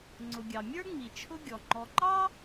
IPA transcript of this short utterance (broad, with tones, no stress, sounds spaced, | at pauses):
ŋ͡ǀ ʊ˩ ɡʲ ɑ˩ mʲ ə˞˥ ŋ͡m i˩ t͡ʃʰ ʊ˦ ɡʲ ɔ˩ ŋ͡ǃ ɔ˨ ǃ ɑ˥